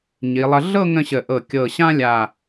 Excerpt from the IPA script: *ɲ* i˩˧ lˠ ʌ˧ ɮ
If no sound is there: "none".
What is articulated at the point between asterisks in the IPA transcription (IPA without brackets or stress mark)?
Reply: ɲ